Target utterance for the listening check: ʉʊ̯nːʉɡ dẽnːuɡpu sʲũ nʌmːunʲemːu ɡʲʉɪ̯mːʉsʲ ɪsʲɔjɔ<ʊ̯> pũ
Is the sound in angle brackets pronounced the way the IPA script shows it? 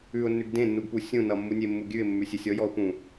yes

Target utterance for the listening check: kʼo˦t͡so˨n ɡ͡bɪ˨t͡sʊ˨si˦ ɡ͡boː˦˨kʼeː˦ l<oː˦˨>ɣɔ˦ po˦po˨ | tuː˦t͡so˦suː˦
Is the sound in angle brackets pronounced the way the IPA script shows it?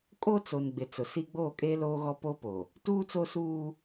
no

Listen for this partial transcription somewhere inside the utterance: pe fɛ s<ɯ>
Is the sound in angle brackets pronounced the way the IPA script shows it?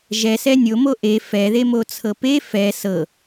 no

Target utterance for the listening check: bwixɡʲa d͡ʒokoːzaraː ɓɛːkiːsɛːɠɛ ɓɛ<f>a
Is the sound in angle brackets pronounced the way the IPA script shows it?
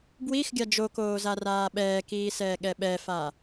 yes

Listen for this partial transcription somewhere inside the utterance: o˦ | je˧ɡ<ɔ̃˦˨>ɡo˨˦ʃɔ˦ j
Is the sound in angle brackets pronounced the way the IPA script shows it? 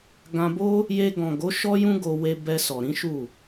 no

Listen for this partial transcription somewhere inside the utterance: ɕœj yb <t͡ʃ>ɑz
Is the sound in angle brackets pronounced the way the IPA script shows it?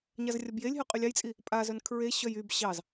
no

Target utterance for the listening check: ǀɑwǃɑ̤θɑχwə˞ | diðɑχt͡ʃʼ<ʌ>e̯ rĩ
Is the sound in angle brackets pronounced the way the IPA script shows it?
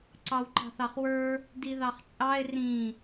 no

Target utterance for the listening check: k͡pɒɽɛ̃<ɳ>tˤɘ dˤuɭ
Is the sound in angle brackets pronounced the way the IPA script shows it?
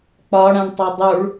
yes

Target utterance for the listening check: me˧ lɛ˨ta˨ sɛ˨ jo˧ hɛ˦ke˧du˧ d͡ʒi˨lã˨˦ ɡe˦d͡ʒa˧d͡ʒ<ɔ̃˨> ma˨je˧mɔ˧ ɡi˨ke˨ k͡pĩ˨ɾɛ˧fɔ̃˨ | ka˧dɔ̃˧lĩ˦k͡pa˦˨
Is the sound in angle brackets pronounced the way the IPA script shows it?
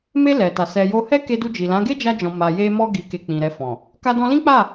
yes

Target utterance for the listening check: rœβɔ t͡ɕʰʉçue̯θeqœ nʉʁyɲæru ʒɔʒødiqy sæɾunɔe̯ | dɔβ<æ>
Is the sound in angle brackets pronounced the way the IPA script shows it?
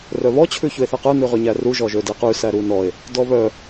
no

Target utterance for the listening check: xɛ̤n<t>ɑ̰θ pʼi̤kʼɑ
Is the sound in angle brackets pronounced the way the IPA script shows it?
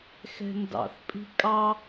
no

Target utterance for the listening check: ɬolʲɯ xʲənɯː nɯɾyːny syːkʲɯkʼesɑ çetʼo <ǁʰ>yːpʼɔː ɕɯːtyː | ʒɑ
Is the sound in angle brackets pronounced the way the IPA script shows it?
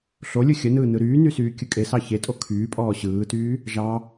no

